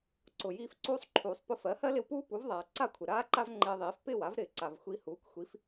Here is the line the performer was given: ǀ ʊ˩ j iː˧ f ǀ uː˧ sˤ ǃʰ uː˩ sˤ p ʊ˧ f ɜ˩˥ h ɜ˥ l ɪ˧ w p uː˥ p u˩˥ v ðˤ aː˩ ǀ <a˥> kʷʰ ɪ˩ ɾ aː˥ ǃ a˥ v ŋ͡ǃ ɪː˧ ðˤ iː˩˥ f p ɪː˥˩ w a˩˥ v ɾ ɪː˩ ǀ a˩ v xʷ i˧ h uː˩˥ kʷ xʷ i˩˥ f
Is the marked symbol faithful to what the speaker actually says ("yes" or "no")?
no